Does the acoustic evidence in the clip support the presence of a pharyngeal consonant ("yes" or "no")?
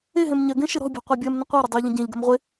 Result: no